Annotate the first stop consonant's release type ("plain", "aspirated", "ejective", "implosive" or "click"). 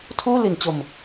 aspirated